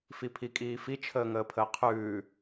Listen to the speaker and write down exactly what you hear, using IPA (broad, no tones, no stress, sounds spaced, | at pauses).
f i pʰ i kʼ iː f i t͡ʃʰ əː ŋ əː pʰ əː qʰ ʉː